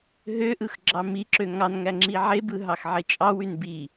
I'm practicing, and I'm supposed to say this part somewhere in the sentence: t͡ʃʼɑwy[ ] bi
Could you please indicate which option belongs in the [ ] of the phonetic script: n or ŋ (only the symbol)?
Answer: n